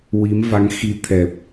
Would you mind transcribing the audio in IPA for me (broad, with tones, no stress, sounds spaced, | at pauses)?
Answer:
w i˧˥ m v a˧˥ ŋ x i˧˥ t̪ʰ ɛ˨˩ p̚